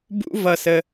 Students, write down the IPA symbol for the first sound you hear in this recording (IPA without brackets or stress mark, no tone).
b